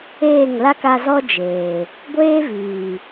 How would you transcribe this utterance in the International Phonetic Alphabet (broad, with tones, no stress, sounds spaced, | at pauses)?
eː˦˨ ŋ l a˦ k a˧ z ɔ˦ d͡ʒ eː˨ | ɡʷ eː˦ v iː˨